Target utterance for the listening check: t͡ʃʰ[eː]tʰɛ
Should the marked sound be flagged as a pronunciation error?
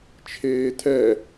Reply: no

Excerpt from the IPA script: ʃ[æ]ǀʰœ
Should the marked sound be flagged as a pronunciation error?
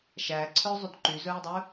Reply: no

